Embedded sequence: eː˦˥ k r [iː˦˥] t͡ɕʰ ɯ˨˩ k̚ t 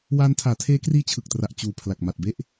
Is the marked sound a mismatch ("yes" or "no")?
no